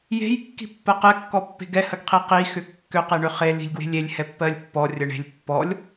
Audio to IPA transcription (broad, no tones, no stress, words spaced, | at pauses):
je̤j kːi̤pːɜqɛ kːɔpːe̤ɡɛ həɡqʰiqi xʏkːʏ qeɳʏχe li̤lʲɡwe̤lʲelʲ hɛpːɜlʲpːɔ rʲəɳe̤lʲ pːɔlʲ